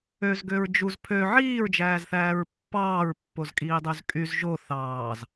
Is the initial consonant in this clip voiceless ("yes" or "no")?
no